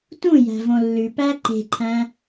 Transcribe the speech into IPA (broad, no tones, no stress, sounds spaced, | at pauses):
t ũ j æ̤ v õ lː ʉ p æ ǃ e̤ ǃʰ æ̃